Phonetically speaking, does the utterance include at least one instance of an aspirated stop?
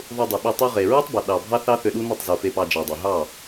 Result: no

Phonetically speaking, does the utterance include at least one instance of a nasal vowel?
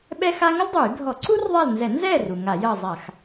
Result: no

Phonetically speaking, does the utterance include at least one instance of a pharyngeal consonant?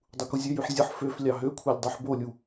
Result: yes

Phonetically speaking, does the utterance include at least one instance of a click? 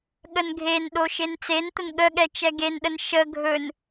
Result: no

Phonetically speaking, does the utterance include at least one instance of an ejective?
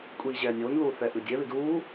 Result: yes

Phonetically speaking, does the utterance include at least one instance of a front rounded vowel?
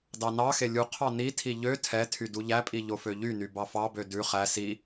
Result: yes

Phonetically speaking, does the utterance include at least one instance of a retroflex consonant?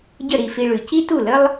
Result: yes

